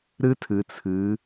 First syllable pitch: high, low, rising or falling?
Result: high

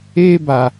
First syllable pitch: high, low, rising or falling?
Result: high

